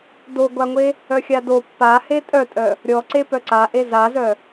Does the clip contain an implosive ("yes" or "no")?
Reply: no